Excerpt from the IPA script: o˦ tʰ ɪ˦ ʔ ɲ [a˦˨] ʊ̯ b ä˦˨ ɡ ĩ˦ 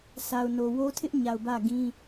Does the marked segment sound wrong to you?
yes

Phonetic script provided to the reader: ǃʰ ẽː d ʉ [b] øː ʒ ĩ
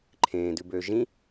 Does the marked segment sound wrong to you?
no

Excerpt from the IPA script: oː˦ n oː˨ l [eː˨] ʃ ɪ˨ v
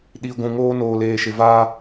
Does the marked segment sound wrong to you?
no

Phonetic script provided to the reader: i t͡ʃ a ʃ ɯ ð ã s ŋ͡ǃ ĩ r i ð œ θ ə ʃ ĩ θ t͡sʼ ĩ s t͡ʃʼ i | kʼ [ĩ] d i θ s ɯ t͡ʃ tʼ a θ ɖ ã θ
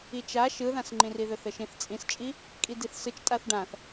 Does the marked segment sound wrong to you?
yes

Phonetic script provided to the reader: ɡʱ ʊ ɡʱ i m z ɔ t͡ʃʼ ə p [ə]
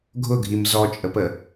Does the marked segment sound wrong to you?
no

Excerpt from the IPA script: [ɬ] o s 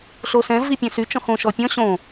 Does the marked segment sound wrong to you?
no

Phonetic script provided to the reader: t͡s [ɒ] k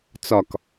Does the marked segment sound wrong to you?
no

